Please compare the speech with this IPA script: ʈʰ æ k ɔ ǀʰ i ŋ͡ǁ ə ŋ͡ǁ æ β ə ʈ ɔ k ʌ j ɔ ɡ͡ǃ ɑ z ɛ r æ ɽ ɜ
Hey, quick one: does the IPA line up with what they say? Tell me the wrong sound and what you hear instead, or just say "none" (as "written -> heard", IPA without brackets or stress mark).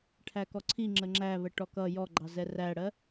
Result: none